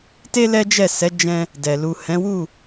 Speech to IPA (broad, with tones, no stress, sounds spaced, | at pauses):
t e˧ l ɛ˦ d͡ʒ ɛ˦˨ s ɛ˨˦ d͡ʒ ɛ̃˧ | d ɛ˨ l u˨ h ɛ̃˨˦ w u˦˨